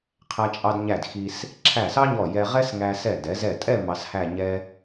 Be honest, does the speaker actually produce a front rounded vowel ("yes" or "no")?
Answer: no